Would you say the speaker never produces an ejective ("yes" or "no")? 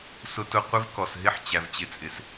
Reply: no